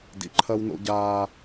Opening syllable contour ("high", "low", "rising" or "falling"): low